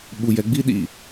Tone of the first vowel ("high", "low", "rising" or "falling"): low